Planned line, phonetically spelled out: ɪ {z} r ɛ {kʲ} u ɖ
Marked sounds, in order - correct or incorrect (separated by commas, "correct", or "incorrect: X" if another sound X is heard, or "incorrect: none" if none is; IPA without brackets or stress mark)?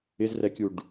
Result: correct, correct